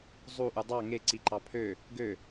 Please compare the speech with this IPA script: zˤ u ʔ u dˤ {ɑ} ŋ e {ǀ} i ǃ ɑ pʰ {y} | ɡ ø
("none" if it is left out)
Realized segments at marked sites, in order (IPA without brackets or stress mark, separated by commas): ɑ, ǀ, ø